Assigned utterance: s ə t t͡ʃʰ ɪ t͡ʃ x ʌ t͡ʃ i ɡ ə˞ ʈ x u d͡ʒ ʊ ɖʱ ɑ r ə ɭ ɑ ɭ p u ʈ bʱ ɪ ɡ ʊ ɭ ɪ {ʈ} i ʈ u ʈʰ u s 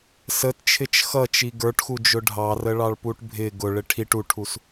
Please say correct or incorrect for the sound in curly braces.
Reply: incorrect